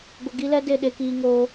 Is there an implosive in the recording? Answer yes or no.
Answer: yes